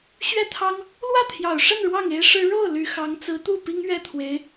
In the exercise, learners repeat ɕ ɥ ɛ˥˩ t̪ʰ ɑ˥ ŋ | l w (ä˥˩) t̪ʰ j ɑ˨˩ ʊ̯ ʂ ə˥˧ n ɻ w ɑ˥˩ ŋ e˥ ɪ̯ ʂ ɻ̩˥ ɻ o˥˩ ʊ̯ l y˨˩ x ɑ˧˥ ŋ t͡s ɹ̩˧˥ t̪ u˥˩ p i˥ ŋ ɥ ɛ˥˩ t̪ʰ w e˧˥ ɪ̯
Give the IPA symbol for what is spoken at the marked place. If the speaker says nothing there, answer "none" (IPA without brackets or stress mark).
ä˥˩